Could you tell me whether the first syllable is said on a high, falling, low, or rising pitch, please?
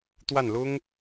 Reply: falling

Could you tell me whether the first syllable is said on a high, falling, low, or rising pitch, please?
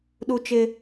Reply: high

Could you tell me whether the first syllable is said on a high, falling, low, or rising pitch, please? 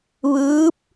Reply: rising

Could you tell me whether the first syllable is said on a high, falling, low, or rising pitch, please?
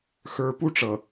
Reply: low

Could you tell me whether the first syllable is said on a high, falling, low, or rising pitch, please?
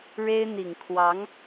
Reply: high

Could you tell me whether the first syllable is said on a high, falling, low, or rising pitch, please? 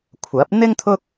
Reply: rising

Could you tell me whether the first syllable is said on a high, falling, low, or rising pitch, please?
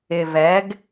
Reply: low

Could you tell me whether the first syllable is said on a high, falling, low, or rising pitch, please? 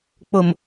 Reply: low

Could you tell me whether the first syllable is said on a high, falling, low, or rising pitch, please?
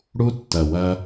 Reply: high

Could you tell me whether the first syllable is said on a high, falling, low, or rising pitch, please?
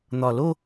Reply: low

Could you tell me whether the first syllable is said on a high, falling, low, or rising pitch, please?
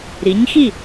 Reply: rising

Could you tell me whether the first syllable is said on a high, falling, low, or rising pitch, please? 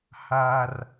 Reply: high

